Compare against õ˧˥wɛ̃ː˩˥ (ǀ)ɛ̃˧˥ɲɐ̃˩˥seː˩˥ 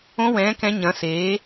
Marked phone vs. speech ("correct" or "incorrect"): incorrect